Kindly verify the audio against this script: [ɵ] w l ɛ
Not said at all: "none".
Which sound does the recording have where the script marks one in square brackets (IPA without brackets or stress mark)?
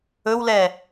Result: ɵ